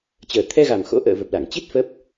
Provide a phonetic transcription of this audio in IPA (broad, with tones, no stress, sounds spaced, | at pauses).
t͡ɕ əː˨˩ t̪ʰ ɛ˧ ɣ a˨˩ m x o̰˧˥ ʔ ə̰ː˧˨ v ə˨˩ p̚ l a˧˩ ŋ t͡ɕ i˦˥ t̚ f ə˦˥ p̚